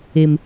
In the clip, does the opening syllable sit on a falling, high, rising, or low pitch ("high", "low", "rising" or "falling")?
low